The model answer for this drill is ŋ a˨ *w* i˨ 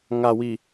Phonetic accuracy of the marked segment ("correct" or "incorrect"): correct